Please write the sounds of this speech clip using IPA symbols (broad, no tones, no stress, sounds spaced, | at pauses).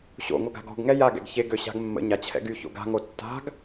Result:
ɕ o̰ ŋʷ œ ɡ a̤ ɡ ɔ̤ ɡ ŋ ɛ j a ɡ ɛ̰ ɡ ç e ɡ ø ɕ a̤ ɡ mː ə̰ ɲ a t͡ɕʰ ɛ̰ ɡ y ç o̰ ɡ a̤ ŋ o tː a̤ ɡ